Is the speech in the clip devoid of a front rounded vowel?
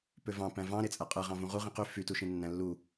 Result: no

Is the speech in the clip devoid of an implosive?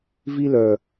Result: yes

